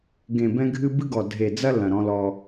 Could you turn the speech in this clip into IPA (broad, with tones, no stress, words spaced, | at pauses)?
ɡẽ˨bɛ̃˦ɡʱɨ˦ bɨ˦ɡɔ˨ dʱe˨d͡zɐ˦ lɐ̃˨ɾɔ̃˦lɔ˦